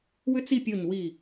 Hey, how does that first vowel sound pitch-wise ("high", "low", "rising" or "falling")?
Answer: high